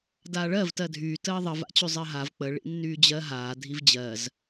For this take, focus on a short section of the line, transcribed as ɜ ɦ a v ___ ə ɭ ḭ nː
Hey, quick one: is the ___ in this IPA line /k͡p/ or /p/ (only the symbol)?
k͡p